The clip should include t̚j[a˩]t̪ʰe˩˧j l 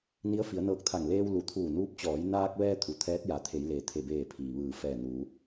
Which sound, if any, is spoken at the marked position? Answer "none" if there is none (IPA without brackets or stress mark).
a˩˧